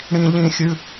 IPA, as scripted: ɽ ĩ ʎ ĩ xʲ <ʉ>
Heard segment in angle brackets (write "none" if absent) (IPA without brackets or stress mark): ʉ